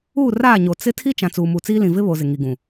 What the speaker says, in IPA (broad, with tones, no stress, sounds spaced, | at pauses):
uː˦˨ r aː˦˨ ɲ o˨ t͡s ɪ˦ tʰ i˦ t͡ʃ ã˨ t͡s uː˨ m u˨ t͡s iː˦ l ĩ˨ v ɪ˦ β o˨ z ɪ˨ ŋ i˨ ɡ ũ˨